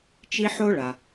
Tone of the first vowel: high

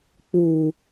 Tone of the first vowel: low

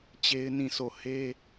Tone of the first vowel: high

